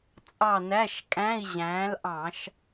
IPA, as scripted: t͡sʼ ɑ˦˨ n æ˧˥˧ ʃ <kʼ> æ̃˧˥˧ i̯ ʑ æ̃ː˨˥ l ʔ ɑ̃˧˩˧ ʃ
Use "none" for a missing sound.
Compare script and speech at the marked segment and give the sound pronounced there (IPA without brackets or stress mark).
kʼ